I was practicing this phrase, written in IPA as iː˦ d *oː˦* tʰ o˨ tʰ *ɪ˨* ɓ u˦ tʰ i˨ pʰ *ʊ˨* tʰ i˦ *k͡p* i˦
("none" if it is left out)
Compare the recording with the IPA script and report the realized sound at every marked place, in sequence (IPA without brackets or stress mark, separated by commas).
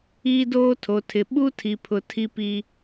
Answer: oː˦, ɪ˨, ʊ˨, p